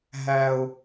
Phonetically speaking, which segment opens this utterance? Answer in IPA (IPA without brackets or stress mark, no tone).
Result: ɦ